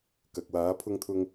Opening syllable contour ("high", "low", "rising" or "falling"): low